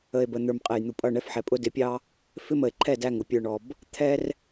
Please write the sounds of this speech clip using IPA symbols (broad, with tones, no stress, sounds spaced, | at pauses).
ə˨ e̯ b ə˨ n̪ ə˞˨ m qʼ ɛ˨ j n̪ u˨ pʼ ʌ˦˨ ɳ ɛ˦ f ħ ɛ˨ pʼ ʊ˦ d ɪ˨˦ pʲ ɑ˦ | f ɪ˦ m ə˨ e̯ ǃʰ ɛ˦˨ d æ˦˨ ŋ ʊ˨ pʲ ə˞˨ ɳ ɔ˨ b | t̪ʰ ɛ˦ r